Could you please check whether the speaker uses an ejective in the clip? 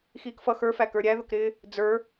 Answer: no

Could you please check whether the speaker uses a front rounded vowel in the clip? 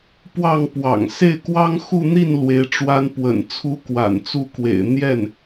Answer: no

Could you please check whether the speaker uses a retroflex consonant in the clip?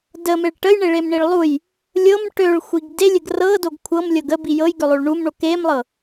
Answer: yes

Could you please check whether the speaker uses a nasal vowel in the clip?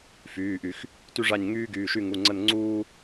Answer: no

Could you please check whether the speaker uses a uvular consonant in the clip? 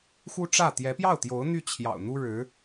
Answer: no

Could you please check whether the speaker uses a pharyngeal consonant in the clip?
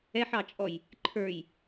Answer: yes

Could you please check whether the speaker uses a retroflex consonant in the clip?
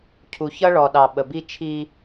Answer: yes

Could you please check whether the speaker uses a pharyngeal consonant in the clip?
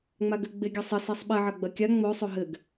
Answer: yes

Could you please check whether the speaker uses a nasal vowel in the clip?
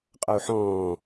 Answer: yes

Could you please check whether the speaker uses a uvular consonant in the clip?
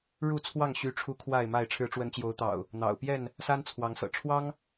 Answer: no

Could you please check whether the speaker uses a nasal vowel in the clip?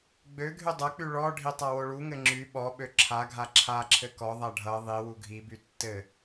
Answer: no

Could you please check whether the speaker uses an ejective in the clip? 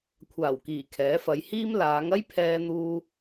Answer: no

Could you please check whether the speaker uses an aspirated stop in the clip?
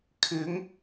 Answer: yes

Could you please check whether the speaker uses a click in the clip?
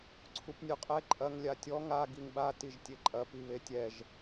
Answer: yes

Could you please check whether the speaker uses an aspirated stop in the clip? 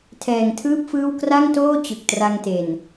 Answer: yes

